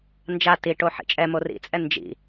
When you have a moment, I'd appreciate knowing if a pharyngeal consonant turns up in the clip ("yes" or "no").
yes